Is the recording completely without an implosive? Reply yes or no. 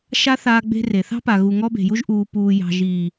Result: yes